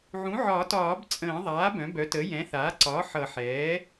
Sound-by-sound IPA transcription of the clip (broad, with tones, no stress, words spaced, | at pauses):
ʕũ˩˥ʕɒ˨˩˦tɒː˨˩˦b t͡sʼə̃ː˨˩˦ ðˤaː˩˥ bœ̃˩˥bœ˩˥tə˩˥ jɛ̃˩˥θaː˩˥ǀɒː˩˥ ħʌ˨˩˦ħɛː˩˥